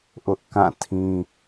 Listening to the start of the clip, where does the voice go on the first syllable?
high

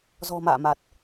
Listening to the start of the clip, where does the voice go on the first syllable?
low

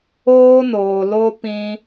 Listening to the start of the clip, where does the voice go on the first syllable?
high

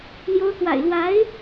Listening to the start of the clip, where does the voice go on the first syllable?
rising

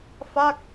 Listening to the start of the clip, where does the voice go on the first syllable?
falling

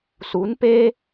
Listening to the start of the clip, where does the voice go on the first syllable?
rising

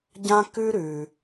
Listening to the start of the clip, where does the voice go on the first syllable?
high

